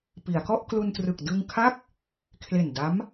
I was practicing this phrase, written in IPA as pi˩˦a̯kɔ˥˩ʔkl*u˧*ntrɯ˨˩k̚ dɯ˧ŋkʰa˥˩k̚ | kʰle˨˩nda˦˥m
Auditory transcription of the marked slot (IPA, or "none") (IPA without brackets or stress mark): u˧